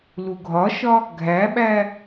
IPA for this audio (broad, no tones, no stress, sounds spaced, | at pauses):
l u ɡʱ ɒ ʃ ɒ | ɡʱ æ ɓ æ